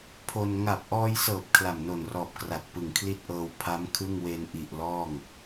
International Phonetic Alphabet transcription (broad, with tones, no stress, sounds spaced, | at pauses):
pʰ o˧ n ŋ a˨˩ p̚ ʔ ɔː˧ j s ɤː˨˩ p̚ kʰ l a˨˩ m n o˨˩ n r ɔː˨˩ p̚ k r a˨˩ t̚ p ɯ˨˩ ŋ kʰ l i˥˩ t̚ ʔ ɤː˧ w pʰ a˦˥ m kʰ ɯ˥˩ ŋ w e˧ n ʔ i˨˩ ʔ l ɔː˥˩ ŋ